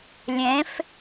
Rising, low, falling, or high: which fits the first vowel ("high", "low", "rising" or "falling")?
rising